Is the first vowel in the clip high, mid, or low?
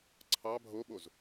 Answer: low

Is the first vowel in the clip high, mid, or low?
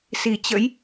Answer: high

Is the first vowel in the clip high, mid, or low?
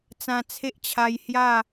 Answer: low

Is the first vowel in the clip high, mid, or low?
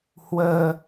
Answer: mid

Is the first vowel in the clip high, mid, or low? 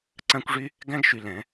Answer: low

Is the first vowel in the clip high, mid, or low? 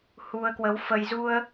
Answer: high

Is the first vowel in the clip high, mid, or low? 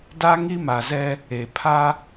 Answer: low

